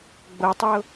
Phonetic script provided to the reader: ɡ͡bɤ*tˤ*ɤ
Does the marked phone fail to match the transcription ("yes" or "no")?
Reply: no